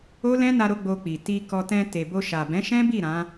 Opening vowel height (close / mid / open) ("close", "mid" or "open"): mid